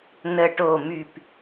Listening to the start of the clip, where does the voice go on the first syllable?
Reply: low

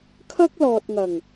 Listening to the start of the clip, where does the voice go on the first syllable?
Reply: high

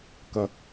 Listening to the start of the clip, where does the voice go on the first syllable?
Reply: low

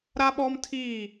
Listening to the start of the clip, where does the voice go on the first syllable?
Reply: high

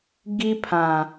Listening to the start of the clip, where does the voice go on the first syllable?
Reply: high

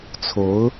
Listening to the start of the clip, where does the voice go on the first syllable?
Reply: rising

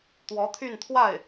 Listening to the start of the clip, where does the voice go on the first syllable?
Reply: rising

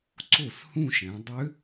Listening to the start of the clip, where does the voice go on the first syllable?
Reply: falling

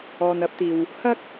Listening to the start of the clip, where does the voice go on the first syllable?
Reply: low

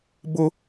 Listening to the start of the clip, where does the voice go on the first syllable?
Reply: high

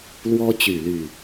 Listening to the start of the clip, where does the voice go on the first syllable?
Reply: high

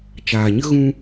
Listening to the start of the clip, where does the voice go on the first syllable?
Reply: low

